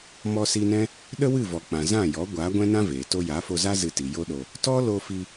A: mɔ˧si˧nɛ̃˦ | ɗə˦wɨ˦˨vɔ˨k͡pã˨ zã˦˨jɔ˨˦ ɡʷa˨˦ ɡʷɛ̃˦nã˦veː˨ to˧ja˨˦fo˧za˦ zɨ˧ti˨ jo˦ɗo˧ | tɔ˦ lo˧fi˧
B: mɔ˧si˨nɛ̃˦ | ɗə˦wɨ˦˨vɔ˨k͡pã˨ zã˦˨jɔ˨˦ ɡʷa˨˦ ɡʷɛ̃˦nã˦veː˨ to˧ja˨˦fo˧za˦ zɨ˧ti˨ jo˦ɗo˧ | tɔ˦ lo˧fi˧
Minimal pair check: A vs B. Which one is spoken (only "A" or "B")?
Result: A